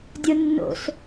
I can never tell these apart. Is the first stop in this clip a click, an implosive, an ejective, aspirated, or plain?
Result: plain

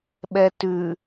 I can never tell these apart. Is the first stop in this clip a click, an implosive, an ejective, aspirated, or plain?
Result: implosive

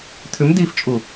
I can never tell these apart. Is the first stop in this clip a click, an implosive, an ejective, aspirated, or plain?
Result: aspirated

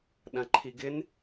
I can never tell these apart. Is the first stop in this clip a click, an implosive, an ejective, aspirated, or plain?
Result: implosive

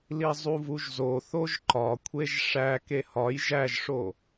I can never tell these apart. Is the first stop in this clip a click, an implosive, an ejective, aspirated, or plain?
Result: click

